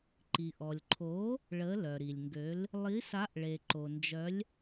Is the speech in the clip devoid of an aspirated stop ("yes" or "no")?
no